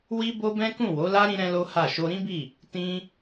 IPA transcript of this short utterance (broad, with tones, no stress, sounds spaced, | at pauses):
w i˦ b o˦ b ɛ̃˦ k ũ˦˨ w o˨˦ l a˦ ɾ ĩ˦ ɾ ɛ̃˦ l o˦ h a˦˨ ʃ o˧ ɾ ĩ˦ b i˦˨ | t ĩ˦